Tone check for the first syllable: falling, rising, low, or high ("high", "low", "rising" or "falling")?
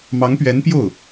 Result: rising